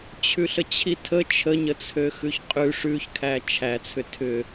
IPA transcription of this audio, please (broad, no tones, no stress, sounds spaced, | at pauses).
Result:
t͡ɕʰ ʉ ɬ ə t͡ɕʰ i tʰ ə t͡ʃʰ ə ɲ ə t͡sʰ ø x ʉ ç qʼ ʉ ʂ ʉ ç kʰ æ t͡ʃʰ æ t͡sʰ ʏ tʰ ʏ